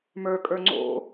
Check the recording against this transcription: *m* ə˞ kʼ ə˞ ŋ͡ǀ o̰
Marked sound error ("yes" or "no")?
no